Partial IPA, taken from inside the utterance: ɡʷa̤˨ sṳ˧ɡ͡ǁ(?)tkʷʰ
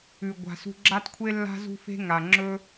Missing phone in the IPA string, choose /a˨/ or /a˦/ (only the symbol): a˦